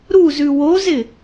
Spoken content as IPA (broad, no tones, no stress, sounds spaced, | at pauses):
ɾ u z ʉ w o z ɪ